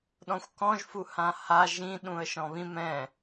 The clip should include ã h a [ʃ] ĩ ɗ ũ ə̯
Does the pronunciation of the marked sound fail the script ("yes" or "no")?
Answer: yes